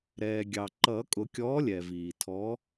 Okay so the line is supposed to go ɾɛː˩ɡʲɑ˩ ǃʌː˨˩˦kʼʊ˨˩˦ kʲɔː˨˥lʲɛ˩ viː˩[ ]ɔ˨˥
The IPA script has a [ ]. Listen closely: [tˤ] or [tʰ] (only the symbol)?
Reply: tʰ